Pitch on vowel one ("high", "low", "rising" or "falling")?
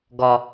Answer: low